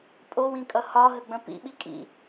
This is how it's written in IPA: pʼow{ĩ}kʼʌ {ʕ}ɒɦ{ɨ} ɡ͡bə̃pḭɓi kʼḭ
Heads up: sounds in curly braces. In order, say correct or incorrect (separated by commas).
correct, incorrect, incorrect